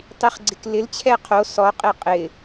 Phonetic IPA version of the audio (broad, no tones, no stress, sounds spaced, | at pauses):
tˤ i χ ɡ͡ǀ ɪ k l ɪ l t͡ɕʰ ɛ qʰ o s ɔ qʼ e qʼ ɪ